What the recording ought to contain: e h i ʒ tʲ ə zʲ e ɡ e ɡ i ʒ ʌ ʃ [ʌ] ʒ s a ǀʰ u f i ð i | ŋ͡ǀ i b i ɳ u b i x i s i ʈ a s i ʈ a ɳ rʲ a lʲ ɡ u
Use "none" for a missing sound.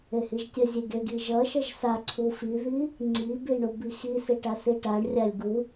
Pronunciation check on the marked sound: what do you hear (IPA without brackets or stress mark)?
ʌ